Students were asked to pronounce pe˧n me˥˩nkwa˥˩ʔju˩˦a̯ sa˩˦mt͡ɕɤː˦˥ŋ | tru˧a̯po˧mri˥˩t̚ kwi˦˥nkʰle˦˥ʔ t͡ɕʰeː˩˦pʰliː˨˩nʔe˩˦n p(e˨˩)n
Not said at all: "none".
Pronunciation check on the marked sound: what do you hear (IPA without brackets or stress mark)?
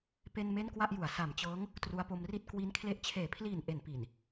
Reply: i˨˩